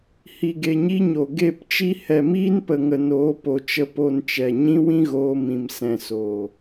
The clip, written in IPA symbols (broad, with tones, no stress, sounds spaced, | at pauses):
h i˨ ɡ e˨ ɲ i˦ ɲ o˨ ɡ e˦˨ p t͡ʃ i˦ h ɛ˨ m iː˦ n p ə˨ ŋ ə˨ n oː˨˦ p o˨ t͡ʃ ə˧ p o˧ n t͡ʃ ɛ˨ ɲ ĩ˦ w ĩ˦ ɣ oː˧ m ĩ˨ m s ɛ̃˨ s oː˨